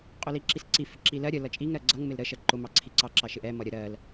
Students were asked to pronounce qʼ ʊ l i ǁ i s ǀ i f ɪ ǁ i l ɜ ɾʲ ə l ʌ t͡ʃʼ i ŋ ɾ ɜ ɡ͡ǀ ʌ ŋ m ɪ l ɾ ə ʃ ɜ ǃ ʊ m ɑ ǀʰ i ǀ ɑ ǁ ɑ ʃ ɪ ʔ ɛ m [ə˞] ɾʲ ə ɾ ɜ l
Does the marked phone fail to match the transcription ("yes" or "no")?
yes